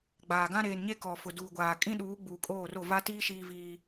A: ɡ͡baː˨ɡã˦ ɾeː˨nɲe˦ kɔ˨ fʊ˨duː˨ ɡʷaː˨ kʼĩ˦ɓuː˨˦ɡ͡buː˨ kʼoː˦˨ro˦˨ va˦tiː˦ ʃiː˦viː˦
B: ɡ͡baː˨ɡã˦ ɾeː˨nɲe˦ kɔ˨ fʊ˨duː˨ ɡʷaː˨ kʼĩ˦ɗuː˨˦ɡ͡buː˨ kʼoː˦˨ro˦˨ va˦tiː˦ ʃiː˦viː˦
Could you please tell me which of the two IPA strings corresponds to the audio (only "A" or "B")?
B